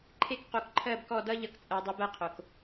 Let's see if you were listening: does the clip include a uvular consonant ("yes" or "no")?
yes